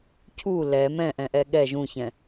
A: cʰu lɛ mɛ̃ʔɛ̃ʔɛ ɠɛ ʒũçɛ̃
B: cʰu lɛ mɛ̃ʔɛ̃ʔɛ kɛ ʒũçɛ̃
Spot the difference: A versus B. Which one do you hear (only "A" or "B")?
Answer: A